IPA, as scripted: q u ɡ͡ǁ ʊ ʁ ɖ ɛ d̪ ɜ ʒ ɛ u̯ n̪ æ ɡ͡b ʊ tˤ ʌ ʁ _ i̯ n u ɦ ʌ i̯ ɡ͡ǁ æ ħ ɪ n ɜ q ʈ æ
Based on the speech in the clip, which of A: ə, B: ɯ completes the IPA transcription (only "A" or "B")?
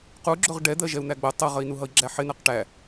A